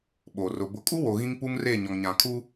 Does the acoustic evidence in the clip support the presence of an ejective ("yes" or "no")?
yes